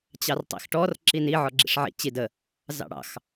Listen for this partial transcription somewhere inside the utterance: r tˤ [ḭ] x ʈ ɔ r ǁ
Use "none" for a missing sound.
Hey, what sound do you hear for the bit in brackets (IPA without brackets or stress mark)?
ḭ